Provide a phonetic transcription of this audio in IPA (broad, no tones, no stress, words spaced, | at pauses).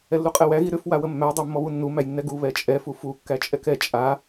ɛlːuqʼɛwæ ɣiɾʏf wawəmːæ dˤæmːɔβunːu mæjnːɛɡu βɛt͡ʃʼɛ fufu kːæt͡ʃʼɛkɛ t͡ʃʼa